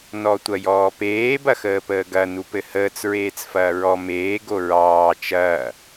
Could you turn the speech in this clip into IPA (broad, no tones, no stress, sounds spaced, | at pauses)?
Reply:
n ɔ tʷ ɐ j ɔː p eː b ɐ x əː p əː ɡ ɐ n u p ɘ h əː t͡s ɹ eː t͡s f ɐː ɹ ɔ m eː ɡ o ɹ ɑː t͡ʃ ɐː